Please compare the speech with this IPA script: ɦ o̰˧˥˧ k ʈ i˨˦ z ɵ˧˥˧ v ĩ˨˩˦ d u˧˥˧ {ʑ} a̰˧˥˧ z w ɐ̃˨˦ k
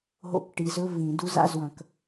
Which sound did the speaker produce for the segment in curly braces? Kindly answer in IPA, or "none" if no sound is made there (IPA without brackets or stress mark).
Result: z